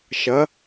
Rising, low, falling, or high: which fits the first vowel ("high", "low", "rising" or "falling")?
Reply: rising